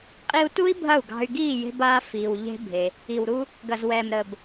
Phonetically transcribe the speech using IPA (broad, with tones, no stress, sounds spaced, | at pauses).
qʼ i˧ u̯ t u˦ i̯ bʱ ɐ˦˨ u̯ ɡ ɑ̤˧ y̯ ɡ iː˦˨ j e̤˧ b aː˦ f iː˧ w ʎ e̤˦ bʱ e˧ | i˨ w ɾ u˧ | ɡ ɐ˨ z w ɛː˨ m ɾ əː˨ b